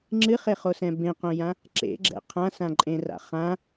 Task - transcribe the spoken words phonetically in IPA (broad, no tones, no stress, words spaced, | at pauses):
ŋ͡ǁɨχeχosɛ̃ bẽqõjã | ǁḛɡ͡ǁɛ̰ qʰãsãǃʼẽra̰ χã